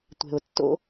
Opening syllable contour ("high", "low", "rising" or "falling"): low